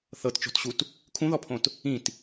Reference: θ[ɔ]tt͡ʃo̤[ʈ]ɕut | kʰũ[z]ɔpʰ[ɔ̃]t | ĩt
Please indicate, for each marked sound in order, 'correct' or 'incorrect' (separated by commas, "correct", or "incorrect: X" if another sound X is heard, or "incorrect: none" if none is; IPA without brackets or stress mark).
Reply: incorrect: ɤ, incorrect: t, incorrect: ð, incorrect: õ